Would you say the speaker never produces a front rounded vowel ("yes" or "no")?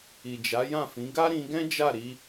yes